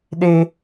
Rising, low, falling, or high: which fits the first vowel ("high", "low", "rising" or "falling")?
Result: high